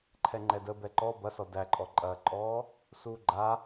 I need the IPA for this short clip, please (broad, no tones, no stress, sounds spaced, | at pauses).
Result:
ǃʰ ɛ ŋ͡ǃ ɛ d ə b ɛ ǃ ɔ b ɐ s ɔ d æ ǃʼ ɔ ǃʼ ɐː ǃʼ ɔː | s uː ɡ͡ǃ a